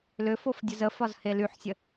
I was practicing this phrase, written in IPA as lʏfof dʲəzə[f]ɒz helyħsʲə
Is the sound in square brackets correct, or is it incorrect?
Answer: correct